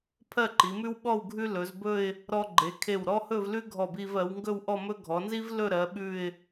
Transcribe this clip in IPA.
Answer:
pʰɜ˥˧ǃi˩˧mʉ˥wɓɔ˥˧w ɡʱʉ˥lɵ˩˧zbɵ˥˧ɪ̯ | ɾɔ˧ɡ͡ǃe˩˧kʰe˧˩w ɾɔ˥hɵ˥˧v lʉ˥ɡʱɔ˧˩bi˧vɜ˩˧w ŋɡɵ˥˧wʔɔ˥˧mɵ˥ ɡʱɔ˩˧nzi˥v lɵ˥˧ɾɜ˩˧ɓʉ˧˩ɪ̯

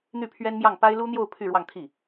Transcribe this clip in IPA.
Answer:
n̪y˥˩pʰɥɛ˥nmjɑ˥˩ŋ pa˥ɪ̯lu˥n̪jo˥˧ʊ̯ pʰy˥˧ ɻwɑ˥˧ŋt̪ʰi˥˩

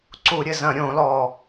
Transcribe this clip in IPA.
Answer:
ǀu˧˩˧ɾʲɘ˨˩ zɐ̃˧˩˧ɾʲõ˧˩˧lɔ˨˩

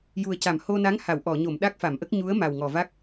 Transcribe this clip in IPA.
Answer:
ju˨˩ə̯ca˨˩˨m ho˧na˧˥ŋ ha˨˩˨w ʔɔ˨˩˨ɲo˨˩˨m ɗa˦˥k̚fa˨˩˨mʔə˦˥k̚ ɲu˧˥ə̯ma˨˩wŋɔ˨˩va˦˥k̚

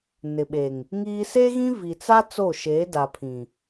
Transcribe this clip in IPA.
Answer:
nɪ˨ɓe˨ŋ | ŋiː˦ seː˦ɣĩ˦ vi˨t͡sa˦ t͡so˦˨ʃeː˨˦ da˨pʰĩ˨

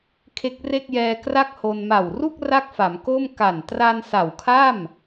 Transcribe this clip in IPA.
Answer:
kʰe˦˥k̚ re˥˩k̚jɛː˧ kra˥˩k̚ho˧n ma˨˩wru˥˩k̚ ra˥˩k̚fa˩˦m ko˥˩m ka˨˩n tra˧n sa˨˩wkʰa˥˩m

